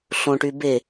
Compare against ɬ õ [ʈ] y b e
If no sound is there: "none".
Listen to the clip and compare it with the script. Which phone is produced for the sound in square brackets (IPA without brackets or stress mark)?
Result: ʈ